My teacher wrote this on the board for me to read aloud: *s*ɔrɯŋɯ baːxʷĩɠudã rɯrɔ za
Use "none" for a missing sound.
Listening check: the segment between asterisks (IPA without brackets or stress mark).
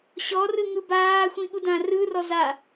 ɕ